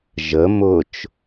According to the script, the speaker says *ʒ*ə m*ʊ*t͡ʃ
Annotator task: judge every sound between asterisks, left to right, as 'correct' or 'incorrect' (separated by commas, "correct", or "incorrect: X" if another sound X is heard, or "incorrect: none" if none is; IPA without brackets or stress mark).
correct, correct